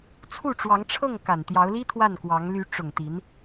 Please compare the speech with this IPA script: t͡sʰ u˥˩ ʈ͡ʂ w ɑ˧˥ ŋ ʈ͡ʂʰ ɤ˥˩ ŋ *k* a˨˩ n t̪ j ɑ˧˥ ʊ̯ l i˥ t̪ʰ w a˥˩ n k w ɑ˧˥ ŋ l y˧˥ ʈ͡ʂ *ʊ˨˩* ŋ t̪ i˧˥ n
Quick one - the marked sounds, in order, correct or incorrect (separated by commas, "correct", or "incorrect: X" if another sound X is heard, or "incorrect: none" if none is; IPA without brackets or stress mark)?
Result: correct, correct